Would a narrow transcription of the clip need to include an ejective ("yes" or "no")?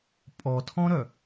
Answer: yes